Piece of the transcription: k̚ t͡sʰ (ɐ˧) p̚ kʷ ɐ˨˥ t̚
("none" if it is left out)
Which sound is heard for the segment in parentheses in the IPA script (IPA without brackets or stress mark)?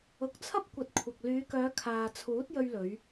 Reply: ɐ˥